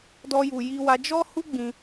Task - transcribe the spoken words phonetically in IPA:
d ɔ˦ j u˧ j i˧ w a˧ d͡ʒ ɔ˦ h u˦ ɡ͡b ĩ˧

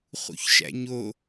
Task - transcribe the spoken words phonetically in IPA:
χ ṵ ç ʃ æ̰ ɲ o

